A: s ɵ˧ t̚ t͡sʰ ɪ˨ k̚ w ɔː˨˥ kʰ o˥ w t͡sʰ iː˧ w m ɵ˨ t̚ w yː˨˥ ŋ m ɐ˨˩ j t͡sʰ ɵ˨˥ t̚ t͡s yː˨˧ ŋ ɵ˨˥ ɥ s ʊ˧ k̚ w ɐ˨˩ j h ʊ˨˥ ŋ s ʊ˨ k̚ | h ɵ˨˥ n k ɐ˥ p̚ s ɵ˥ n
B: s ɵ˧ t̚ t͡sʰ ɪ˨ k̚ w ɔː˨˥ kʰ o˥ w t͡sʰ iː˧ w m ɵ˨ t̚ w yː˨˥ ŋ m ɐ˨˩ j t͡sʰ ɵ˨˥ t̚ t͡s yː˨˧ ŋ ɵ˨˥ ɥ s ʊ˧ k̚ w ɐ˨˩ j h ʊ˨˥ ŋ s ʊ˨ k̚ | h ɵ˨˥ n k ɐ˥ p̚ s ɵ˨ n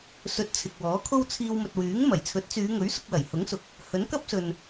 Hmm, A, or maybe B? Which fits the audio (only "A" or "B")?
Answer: B